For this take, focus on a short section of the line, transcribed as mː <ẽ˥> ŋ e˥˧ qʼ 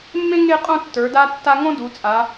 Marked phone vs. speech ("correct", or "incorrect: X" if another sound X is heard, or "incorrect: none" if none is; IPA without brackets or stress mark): correct